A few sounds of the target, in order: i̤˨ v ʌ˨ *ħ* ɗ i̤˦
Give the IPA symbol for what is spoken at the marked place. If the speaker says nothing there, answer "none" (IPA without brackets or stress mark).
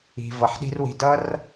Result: ħ